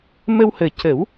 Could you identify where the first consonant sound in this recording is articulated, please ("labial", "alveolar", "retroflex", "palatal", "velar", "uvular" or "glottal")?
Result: labial